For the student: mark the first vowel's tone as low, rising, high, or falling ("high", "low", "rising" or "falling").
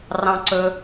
high